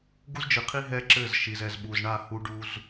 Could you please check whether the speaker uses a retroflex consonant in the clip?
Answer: yes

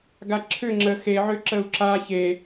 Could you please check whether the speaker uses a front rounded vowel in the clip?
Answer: yes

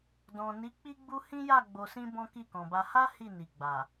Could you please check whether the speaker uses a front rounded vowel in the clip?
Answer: no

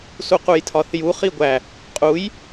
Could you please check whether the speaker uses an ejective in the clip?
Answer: yes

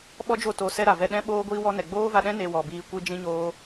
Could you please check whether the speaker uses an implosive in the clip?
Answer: yes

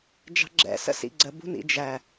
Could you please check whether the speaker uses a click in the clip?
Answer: yes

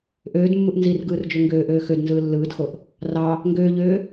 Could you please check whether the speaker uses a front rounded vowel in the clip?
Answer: yes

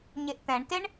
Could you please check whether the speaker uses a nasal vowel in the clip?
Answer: yes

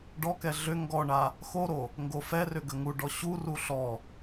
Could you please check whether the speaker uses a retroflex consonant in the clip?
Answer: yes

